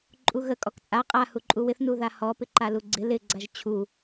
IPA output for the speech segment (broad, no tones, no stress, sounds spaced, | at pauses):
ǃʼ u ɣ ə kʼ ɔ k t͡sʼ a qʼ a h u ǃʼ u w ɪ θ n u ð a h ɔ p ɪ ǃ a l u ɡ͡ǀ ɪ l ɪ ɡ͡ǀ a ʒ t͡ɕʰ u